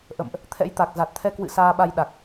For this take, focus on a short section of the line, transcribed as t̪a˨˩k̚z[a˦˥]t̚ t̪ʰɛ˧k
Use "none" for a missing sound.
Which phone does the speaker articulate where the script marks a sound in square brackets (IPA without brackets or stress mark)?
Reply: a˨˩